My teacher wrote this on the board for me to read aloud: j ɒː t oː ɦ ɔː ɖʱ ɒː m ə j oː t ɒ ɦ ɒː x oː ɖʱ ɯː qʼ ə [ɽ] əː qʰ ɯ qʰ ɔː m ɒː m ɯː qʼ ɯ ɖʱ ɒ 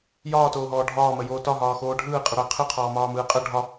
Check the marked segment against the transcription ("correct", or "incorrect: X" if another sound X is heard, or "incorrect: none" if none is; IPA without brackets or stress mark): correct